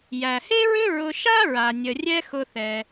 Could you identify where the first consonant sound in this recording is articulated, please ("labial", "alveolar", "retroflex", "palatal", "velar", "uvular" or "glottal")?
palatal